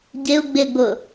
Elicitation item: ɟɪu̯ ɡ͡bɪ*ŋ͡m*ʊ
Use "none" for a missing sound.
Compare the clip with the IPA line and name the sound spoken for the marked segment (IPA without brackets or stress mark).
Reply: ɡ͡b